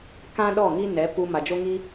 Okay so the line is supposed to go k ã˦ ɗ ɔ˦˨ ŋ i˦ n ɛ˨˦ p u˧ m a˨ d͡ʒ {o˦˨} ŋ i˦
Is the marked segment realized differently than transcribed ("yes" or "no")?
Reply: yes